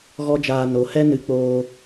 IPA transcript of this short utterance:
ɣ ɔ˦ d͡ʒ aː˧ n o˨˦ h ɛ˦ n ɨ˧ k͡p oː˧

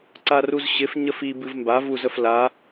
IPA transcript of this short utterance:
ǀ a r u z ɕ ɪ f ɲ ə f i b ɨ v m b a v u z ə f l a

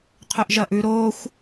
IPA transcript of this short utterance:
qʰ ɵ ʔ ʒ ɐ ʔ ʉ ɾ o xʷ

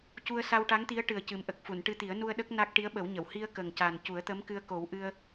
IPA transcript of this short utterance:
c u˧ ə̯ s a˧ w ʈ a˧˥ ŋ t̪ i˧˥ ə̯ ʈ ɨ˨˩ ə̯ c ɨ˨˩ m ʔ ə˨˩ k̚ f u˨˩˨ n ʈ ɨ˧ t̪ i˨˩˦ ə̯ n u˧ ə̯ ɗ ə˦˥ k̚ n a˦˥ k̚ ʈ i˧˥ ə̯ ɓ ə˨˩˦ w ɲ ə˨˩˨ w h i˧ ə̯ k ə˨˩ ŋ c a˨˩ n c u˨˩˦ ə̯ t̪ ə˧˥ m k ɨ˧ ə̯ k o˨˩˦ w ʔ ɨ˧ ə̯

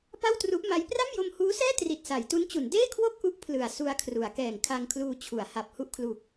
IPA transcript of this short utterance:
p a˥˩ w t r u˦˥ ʔ m a˦˥ j p r a˥˩ m j o˧ m h uː˦˥ s ɛː˥˩ t r i˨˩ t̚ s a˩˦ j t u˦˥ n t͡ɕ u˩˦ n d eː˥˩ kʰ w o˥˩ k̚ ʔ u˦˥ ʔ pʰ l ɯ˨˩ a̯ s u˧ a̯ kʰ r u˩˦ a̯ k ɛː˨˩ ŋ kʰ a˧ ŋ kʰ l uː˧ t͡ɕʰ u˩˦ a̯ h a˨˩ p̚ h u˥˩ ʔ kʰ l u˨˩ k̚

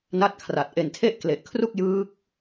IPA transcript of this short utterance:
n a˥˩ t̚ kʰ r a˨˩ t̚ ʔ e˨˩ n tʰ e˥˩ ʔ k l e˨˩ ʔ kʰ r u˥˩ k̚ j ɯː˦˥ k̚

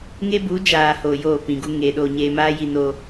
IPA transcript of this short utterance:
ŋ e˦ b u˨˦ d͡ʒ aː˨ h oː˨ j oː˦˨ p ĩ˨ ɡ u˦ ŋ eː˨ ɗ oː˧ ɲ eː˧ m aː˦ j i˧ n oː˧

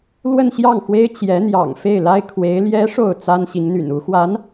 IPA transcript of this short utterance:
l w ə˥˧ n ɕ j ɑ˥˩ ŋ x w e˥ ɪ̯ t͡ɕ j ɛ˧˥ n̪ j ɑ̰˨˩ ŋ f e˥˩ ɪ̯ l a˥ ɪ̯ kʰ w e˧˥ ɪ̯ l j ɛ˧˥ ʂ o˥˩ ʊ̯ t͡s a˥ n ɕ i˧˥ ŋ n̪ y̰˨˩ n u˧˥ x w a˧˥ n

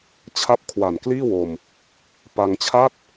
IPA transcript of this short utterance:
t͡ɕʰ a˥˩ p̚ kʰ w a˨˩ n k l iː˥˩ w o˧ m | p a˧ ŋ t͡ɕʰ a˥˩ t̚

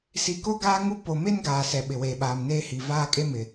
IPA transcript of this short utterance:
s i˨ k o˦ ɡ aː˦ ŋ u˦ p o˨ m e˦ n ɡ aː˨ s ɛ˨ ɓ ɪ˨ w eː˨ ɓ aː˨ m n eː˦ h i˨ v aː˦ kʼ e˦ m ɪ˨

